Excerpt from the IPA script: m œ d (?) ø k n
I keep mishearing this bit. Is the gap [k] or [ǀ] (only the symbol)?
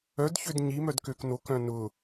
k